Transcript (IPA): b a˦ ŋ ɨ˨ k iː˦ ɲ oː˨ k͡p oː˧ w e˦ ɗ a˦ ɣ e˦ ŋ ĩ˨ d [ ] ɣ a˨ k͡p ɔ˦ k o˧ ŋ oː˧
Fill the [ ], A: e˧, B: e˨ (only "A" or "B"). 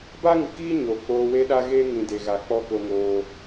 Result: B